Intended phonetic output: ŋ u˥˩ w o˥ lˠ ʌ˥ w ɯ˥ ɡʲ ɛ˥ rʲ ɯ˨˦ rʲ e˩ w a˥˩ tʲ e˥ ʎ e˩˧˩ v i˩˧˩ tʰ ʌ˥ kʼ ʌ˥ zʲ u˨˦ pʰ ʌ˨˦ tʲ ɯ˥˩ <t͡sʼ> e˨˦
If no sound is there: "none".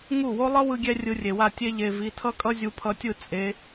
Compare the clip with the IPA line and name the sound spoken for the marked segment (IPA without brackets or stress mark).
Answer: t͡sʼ